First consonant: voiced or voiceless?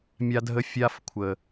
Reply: voiced